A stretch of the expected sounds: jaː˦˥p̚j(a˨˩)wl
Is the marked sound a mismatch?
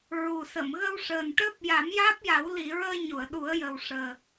yes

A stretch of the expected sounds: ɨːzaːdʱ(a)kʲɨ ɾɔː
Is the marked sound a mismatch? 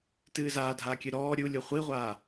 no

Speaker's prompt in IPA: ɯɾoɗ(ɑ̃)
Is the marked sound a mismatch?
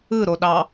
yes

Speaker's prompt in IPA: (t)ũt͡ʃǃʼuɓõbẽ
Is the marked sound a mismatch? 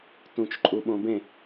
no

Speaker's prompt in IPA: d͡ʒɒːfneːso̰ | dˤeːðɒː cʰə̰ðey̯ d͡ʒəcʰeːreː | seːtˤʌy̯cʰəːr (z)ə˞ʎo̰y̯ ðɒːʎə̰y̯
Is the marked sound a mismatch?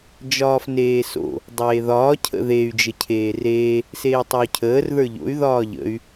yes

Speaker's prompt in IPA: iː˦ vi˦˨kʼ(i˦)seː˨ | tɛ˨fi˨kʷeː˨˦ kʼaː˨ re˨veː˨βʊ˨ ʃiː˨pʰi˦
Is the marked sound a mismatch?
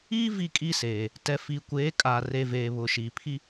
no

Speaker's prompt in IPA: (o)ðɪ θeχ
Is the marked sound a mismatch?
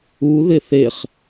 yes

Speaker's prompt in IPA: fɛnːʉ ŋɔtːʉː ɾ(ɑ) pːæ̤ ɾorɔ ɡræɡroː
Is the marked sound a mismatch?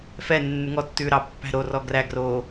no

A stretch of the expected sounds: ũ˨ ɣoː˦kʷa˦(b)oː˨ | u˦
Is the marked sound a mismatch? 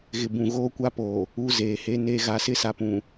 yes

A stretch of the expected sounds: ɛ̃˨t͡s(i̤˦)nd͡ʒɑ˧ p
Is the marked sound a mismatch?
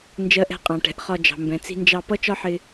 yes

